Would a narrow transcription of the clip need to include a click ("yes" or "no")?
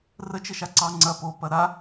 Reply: yes